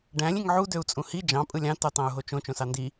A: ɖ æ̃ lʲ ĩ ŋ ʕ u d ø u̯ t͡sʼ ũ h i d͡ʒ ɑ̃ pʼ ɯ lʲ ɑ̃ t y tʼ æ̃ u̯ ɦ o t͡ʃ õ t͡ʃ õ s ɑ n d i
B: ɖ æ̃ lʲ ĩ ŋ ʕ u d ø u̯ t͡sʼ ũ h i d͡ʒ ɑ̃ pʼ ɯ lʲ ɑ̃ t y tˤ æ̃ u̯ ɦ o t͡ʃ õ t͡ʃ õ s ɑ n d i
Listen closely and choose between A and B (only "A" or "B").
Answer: B